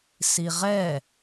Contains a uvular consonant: yes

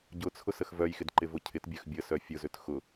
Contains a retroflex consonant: no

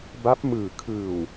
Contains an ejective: no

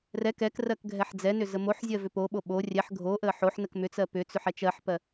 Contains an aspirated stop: no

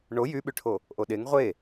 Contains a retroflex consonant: yes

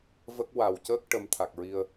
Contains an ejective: no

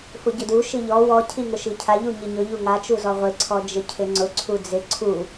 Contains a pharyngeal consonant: no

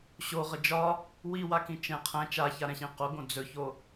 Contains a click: no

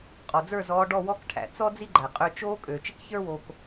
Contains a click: yes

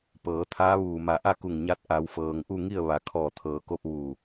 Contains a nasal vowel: no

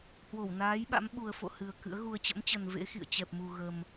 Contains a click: no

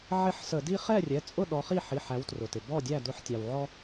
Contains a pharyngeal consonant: yes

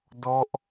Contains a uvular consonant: no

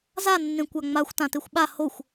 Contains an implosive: yes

